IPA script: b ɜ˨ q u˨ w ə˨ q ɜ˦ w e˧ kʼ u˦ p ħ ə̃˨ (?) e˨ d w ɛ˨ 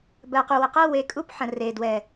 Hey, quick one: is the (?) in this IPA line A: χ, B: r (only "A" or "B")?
B